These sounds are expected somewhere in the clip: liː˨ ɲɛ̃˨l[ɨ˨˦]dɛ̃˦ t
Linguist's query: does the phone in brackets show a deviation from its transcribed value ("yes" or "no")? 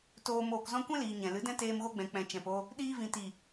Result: no